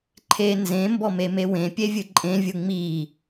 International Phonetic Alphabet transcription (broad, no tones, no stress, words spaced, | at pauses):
ǃʰe nzẽmbɔme mewẽpʲevʲɨ ǃʼẽvʲɯ ŋ͡mi